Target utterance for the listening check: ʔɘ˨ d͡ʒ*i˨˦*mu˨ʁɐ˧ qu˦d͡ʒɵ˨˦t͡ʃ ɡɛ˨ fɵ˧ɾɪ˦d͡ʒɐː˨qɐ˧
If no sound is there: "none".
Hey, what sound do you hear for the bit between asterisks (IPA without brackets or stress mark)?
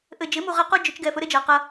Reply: ɪ˨˦